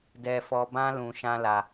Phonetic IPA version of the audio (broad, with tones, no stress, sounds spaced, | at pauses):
d ɛ˧ f ɔ˧ b ã˦ l ũ˧ ʃ ã˦ l a˧